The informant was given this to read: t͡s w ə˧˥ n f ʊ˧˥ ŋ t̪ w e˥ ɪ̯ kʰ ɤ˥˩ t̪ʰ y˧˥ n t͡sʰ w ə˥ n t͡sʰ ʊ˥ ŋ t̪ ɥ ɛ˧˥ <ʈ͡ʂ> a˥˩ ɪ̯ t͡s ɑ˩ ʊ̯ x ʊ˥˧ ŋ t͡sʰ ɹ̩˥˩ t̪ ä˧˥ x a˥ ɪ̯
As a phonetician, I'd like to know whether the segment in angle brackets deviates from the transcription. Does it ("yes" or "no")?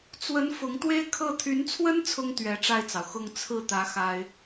no